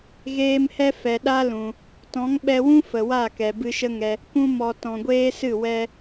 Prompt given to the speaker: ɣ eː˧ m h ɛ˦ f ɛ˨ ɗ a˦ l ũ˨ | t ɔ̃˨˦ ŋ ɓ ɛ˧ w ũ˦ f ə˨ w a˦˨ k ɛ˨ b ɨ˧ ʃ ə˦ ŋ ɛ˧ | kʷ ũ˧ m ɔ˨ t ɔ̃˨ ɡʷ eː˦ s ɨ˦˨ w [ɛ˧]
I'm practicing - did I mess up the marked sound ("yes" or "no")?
no